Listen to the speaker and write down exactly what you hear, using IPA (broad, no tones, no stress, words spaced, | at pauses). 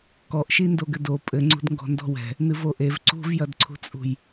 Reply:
kɔʔʃi ndoɡɘdo pʼɘŋ͡ǀṳdŋɡɔ̤ ndɔ̤wɛ̤ | nɨvoʔev ǀṳvjɐdǀʰṳt͡sʼṳj